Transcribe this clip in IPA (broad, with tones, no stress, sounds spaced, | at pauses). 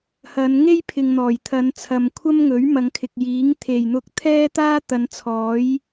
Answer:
h ɐ˨˧ n ŋ e˥ j pʰ ɪ˨ ŋ n̪ ɔː˨˩ j t̪ʰ ɐ˨˧ n t͡sʰ ɐ˨ m kʷʰ ɐ˥ m ŋ ɵ˨˥ ɥ m ɐ˨˧ ŋ kʰ ɪ˨ k̚ j iː˨˥ ŋ t̪ʰ e˨˩ j n̪ ʊ˧ k̚ t̪ʰ ɛː˥ t̪ aː˥ t̪ ɐ˨˧ n t͡sʰ ɔː˨˥ j